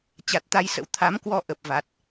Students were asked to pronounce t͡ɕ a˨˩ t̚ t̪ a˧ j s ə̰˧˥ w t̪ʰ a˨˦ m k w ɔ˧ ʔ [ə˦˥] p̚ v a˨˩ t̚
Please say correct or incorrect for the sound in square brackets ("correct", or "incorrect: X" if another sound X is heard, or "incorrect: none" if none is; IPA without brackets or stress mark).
incorrect: ə˨˩